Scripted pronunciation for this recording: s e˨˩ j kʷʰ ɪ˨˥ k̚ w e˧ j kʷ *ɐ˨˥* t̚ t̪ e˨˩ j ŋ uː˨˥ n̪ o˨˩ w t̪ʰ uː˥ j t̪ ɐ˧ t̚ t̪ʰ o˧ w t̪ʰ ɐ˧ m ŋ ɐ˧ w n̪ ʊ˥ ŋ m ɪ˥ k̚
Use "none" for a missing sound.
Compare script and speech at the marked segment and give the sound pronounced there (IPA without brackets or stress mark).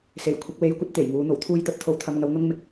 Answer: ɐ˥